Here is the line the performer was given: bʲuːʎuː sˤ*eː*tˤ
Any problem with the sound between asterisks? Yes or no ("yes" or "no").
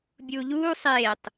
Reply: no